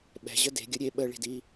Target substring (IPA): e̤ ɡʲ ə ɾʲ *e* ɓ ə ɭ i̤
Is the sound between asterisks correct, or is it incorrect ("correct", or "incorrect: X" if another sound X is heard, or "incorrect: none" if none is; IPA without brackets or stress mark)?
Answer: correct